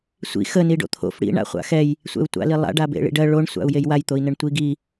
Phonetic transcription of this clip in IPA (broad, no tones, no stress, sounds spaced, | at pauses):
sʷ ḭ x ə n i ɖ o̰ t̪ʰ o̰ f ɽ ḭ ɳ a̰ χʷ a̰ x ɛ j | sʷ ɛ̰ u̯ tʷ a̰ l i lˠ a̰ ɖ a b ḛ ɭ ḭ ɖ ɜ ɭ o ɳ sʷ a̰ u̯ j e j w a j t̪ o i̯ n ə ɳ tʷ i ɡ i